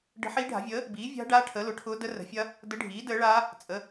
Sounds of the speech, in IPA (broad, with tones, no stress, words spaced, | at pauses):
ɖə̤˧˥ħiː˧˥ɖʱa̤˩˥vʲəː˩˥ | biː˩˥vʲa̤˧˥ɖaː˧˥ ʈʰəː˩˥lʊ˩˥ʈʰʊː˧˥ də˧˥rə̤˩˥fʲɐ˧˥ | də˧˥ɖʱiː˩˥ dəː˩˥ɭaː˧˥ | t͡sʼə˩˥